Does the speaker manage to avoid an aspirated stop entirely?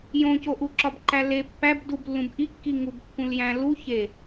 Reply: yes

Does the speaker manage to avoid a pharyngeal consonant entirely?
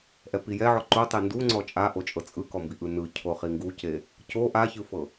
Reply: no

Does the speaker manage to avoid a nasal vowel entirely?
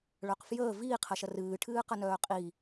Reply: yes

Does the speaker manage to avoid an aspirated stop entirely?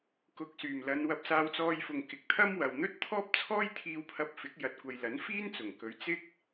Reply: no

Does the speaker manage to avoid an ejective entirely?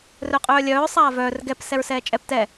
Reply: no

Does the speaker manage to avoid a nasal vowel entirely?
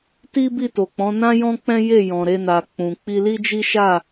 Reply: no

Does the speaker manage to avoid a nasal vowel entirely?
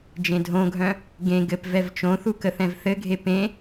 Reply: no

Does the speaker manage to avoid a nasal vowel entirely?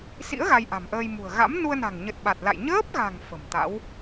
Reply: yes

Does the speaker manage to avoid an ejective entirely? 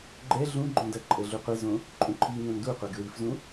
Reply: no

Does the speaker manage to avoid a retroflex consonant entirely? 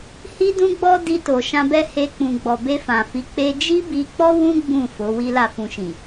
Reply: yes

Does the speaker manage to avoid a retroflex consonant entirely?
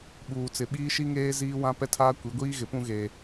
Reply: yes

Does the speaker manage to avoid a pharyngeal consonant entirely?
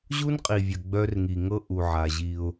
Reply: no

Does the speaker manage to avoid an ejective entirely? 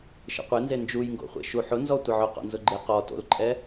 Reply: no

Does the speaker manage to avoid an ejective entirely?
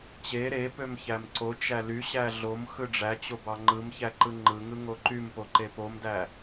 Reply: yes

